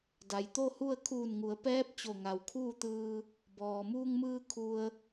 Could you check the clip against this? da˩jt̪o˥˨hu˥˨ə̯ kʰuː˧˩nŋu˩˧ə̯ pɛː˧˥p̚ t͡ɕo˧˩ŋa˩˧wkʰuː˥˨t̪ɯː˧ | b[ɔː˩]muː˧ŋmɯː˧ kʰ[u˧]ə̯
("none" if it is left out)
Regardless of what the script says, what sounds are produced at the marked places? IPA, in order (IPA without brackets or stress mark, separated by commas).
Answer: ɔː˩, u˧